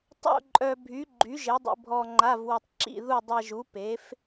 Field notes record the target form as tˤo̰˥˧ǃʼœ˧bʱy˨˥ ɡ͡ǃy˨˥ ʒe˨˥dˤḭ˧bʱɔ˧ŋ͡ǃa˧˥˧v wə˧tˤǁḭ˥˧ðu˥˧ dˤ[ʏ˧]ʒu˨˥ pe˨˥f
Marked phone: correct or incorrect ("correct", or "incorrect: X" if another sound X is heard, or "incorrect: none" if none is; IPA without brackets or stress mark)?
incorrect: ɛ˧